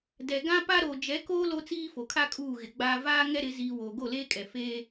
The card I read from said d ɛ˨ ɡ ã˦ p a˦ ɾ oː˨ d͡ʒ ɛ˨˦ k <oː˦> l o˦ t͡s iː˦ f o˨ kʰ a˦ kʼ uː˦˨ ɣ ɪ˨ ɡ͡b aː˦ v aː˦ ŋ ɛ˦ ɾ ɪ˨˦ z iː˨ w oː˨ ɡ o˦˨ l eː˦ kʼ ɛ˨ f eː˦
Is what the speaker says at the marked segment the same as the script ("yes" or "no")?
yes